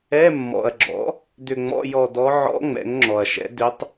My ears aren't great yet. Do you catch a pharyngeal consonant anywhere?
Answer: yes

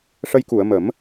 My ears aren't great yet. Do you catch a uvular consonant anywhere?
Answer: no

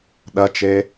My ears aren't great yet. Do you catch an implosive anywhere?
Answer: yes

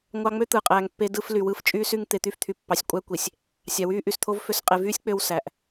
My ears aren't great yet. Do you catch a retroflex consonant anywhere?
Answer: no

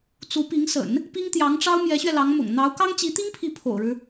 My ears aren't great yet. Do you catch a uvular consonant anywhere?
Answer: no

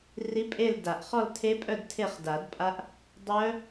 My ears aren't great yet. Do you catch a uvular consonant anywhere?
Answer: yes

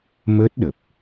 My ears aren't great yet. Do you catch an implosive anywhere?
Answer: yes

